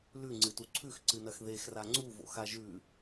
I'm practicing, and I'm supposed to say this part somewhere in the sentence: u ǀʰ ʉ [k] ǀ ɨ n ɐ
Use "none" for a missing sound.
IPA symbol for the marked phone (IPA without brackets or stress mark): x